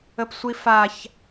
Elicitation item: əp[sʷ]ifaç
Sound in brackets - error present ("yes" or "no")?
no